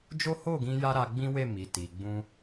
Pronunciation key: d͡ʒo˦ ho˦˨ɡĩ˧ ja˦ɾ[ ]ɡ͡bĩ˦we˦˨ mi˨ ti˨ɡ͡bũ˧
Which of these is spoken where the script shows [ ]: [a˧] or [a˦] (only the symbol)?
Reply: a˧